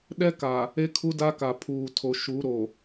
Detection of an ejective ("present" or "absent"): absent